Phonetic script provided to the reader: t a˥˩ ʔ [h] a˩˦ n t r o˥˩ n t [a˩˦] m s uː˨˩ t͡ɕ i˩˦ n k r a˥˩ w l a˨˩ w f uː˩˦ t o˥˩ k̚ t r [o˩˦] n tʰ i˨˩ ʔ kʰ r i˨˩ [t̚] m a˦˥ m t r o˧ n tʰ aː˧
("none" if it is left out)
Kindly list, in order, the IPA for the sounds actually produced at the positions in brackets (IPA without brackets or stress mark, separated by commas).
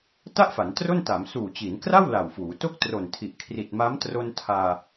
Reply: f, a˩˦, o˨˩, t̚